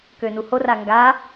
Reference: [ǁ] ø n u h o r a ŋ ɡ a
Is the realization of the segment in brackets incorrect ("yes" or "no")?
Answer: yes